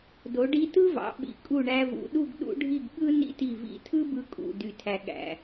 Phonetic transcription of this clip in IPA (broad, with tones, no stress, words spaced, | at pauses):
do˩˧ɖi˧ tɯ˥vɑ̰˩˧ ɓḭ˩˧kʼu˧˩ɳæ˧vṵ˩˧ ɗu˥˧ɡɗṵ˥ɖʱi˥˧ɡ ɠɯ˥ nḭ˥ti˧˩vḭ˧˩ tʰɯ˥bɯ˧kʼṵ˧˩ dy˧˩tʰæ˧ɠæ̰˧˩